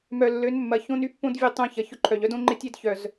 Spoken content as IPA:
m œ˨ lː ø˨˦ n mː ɐ˨ ç õ˦ n y˦ pː õ˦ d vʲ ɛ˦ tˤ œ̃˦ ç ɐ˨ ç ʊ˦ ǃʰ œ˨ ʎ œ˦ d õ˦ ŋ͡ǃ ɪ˦ tʲ e˦ d ç œ˨ z

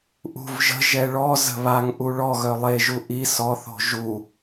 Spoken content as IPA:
ʔ ṳ v ʒ ə̤ ʒ ɛ ɭ ɔ z ə̤ β a ŋ ʔ u ɭ ɔ ɣ œ lˠ e ʒ u ʔ i s ɔ θ o̤ ʒ u

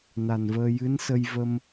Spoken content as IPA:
n a˨˩ n v əː˧ j ɨ˧˥ n s ə˧ j v ə˧ m

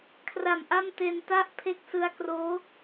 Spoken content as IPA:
kʰ r a˨˩ m ʔ a˥˩ m t e˧ n t a˦˥ ʔ pʰ e˦˥ k̚ s ɯ˧ a̯ k r oː˦˥

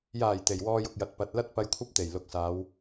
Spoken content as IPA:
j aː˨˩ j t̪ e˨˩ j w ɔː˧ j ʊ˨ k̚ j ɐ˨ t̚ p ɐ˨˥ t̚ l ɐ˥ t̚ p ɐ˧ j kʷʰ ɐ˥ p̚ t̪ e˨˩ j l ʊ˨ k̚ s aː˨˧ w

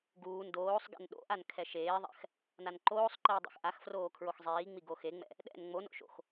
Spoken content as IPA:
ɡ uː n d oː sˤ ɡ ɛ̰ n ɗ o̰ ʔ a n kʰ ɛ ʃ eː ðˤ ɛ̰ x | n a n ǃ oː sˤ ǃ iː dˤ ḛ x ʔ a x f r oː kʰ ɹ o x zˤ iː ŋ͡m i ɡ o x e ŋ͡m ɛ̰ | ɗ ɛ̰ n ŋ͡m o n o̰ ʃ o̰ x

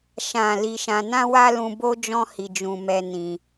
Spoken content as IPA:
ʃ ã˨ l i˧ ʃ ã˧ n ã˦ w a˦ l ũ˧ b o˦ d͡ʒ ɔ̃˦ h i˧ d͡ʒ ũ˧ m ɛ˧ n ĩ˧

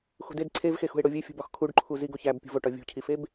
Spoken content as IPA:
x ṳ d e d ǀʰ e v x e x ṳ ɪ̯ ɽ o vʲ e fʲ ṳ b ɒ x kʰ u ɖ ǃʰ u z i ɡ o ç æ b pʲ ṳ v o ʈ ɒ vʲ ṳ cʰ i f e b

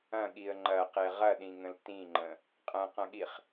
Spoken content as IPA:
ɐ̃ ɠ i ə̯ ŋ͡ǃ ɐ q e ʁ ɐ ɗ ĩ ŋ ə̃ l t ĩ ŋ͡ǃ ə̃ | qʼ ɐ̃ q ɐ̃ ɠ i χ

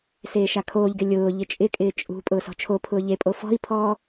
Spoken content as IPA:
s eː ʃ a kʰ oː ʎ ɡ ɪ lʲ ʊː ʎ ɪ t͡ʃʼ ɪ kʼ ɪː t͡ʃʼ ṳ pʼ ʊː s ɔ̤ t͡ʃʰ o pʰ ʊː ʎ e pʼ o f ɔ̤ i̯ pʰ ɔː

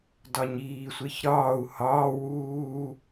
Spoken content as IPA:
d ɒ ɲ iː sʷ e ç ɾ ɒː u̯ h ɒː w uː

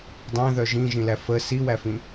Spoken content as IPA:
dˤ æ̃ ð œ ʒ ĩ ʒ ĩ l æ f ə s i w æ f ĩ

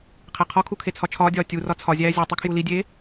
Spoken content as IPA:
qʰ æ qʰ ɒ kʰ u kʰ e t͡sʰ ɒ t͡ʃʰ ɒː dʲ ɒː tʲ u r ɒ t͡sʰ ɒ zʲ æː zʲ o tˤ e kʰ j u l i dʲ eː

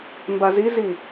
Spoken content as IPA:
m b a z i z i

